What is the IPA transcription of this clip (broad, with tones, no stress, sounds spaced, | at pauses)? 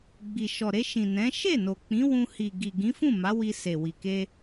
ɡ͡b i˨ ʃ ɔ˨ ɾ e˧ ʃ ĩ˨ n ɛ̃˨˦ ʃ e˦˨ n o˨ k͡p ĩ˨˦ w ũ˧ h i˨ ɡ i˨ ɡ ĩ˨˦ f ũ˦˨ m a˨˦ w i˧ s e˨ w i˨ k e˧